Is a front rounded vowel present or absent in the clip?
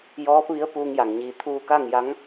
absent